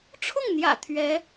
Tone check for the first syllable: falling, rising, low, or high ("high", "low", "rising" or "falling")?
falling